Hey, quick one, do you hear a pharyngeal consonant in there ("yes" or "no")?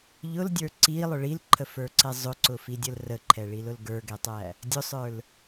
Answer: no